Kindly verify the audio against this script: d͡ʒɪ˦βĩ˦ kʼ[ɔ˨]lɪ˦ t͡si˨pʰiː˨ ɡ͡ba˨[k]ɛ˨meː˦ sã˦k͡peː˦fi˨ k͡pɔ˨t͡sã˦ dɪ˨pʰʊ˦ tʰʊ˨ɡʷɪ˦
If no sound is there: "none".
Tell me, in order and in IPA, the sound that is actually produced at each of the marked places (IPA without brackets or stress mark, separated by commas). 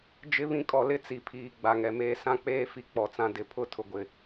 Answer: ɔ˨, ŋ